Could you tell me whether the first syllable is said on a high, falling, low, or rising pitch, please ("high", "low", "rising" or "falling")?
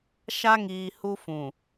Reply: high